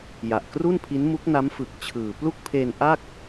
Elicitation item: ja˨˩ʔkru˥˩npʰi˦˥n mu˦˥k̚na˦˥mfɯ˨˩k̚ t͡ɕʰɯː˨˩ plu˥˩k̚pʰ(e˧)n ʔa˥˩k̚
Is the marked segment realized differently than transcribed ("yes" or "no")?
yes